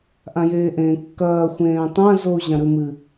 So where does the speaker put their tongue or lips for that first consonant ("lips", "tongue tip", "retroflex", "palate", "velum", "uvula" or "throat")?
throat